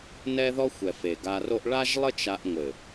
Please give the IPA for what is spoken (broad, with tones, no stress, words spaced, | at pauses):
nɛ˦ðɔ˦xʷɛ˨f e˨ɡa˧ro˦ʔ ɭa˦ʒlˠɘ˦t͡ʃa˧ʔŋʷɘ˨